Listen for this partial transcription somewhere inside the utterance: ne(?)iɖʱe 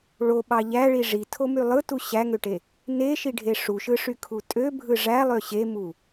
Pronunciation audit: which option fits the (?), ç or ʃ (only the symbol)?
ʃ